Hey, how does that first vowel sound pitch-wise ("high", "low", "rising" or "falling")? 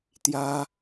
high